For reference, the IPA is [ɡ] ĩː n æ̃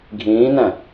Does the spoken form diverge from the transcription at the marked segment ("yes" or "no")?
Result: yes